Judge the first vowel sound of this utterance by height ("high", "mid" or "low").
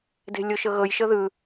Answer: mid